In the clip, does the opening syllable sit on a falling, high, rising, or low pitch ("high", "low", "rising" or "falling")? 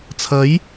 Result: rising